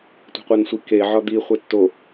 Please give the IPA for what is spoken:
tʷe̤qʷænsʷi ke ʕɒd̪i χʷetːo

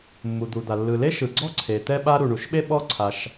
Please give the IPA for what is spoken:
mːu˩d̪u˩d̪a˩ lːɯ˩le˥ʃɯ˩ɡ͡ǀɔ˥ ǀʰe˩t̪ɛ˥ ɓa˥ ɾu˩ ɳu˩ʃɓe˥ ɓɔ˥ǀʰa˩ʃ

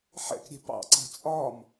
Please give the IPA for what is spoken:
ħɛ̰kɾʲɛ̤ pɑ̰ǀa̤ t͡sʼɒm

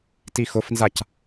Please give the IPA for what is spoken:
tixʊfnzac

